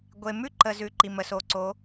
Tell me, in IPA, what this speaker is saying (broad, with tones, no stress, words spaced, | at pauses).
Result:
ɡʷe˨mʉ˦ ǃə˧ zʉ˨ ǃi˨mə˨so˧ǀo˨˦